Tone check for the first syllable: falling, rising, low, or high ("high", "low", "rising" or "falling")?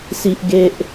low